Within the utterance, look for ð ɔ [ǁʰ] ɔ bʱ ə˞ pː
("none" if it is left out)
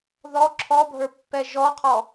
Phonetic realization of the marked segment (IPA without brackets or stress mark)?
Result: ǁʰ